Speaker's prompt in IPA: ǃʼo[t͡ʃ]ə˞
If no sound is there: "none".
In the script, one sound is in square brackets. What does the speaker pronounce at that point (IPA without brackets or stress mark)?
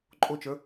t͡ʃ